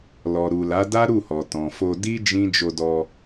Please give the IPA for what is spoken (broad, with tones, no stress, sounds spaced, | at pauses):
l ɔ˨ ɾ u˨ l a˨˦ d a˦ ɾ u˦˨ h ɔ˨ t ɔ̃˨ f o˧ d i˦ d͡ʒ ĩ˦ d͡ʒ o˧ d ɔ˧